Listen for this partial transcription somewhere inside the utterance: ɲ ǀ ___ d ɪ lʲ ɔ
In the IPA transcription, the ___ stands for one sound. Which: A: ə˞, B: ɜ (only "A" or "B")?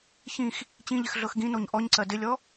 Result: B